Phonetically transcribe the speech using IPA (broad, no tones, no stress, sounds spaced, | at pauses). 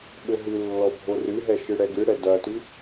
ɓ ɘ ɦ ɨ lː ɔ bʱ o r ɨ ɦ ɛ ʃ ɨ ɽ ɛ ɡ ɨ ɽ ɛ d ɐ t ɨ